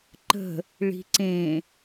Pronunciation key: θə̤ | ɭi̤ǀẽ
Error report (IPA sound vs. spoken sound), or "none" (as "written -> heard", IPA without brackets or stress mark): θ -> ǃ